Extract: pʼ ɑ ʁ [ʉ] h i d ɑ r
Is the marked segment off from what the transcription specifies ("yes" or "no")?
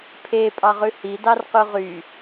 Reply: no